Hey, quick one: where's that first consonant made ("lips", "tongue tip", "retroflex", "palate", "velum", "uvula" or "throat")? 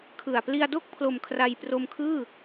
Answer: velum